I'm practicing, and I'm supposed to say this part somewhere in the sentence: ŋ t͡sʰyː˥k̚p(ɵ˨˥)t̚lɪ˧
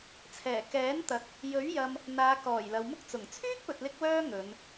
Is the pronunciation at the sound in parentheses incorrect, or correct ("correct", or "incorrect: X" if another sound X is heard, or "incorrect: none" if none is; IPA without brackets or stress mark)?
incorrect: ɵ˨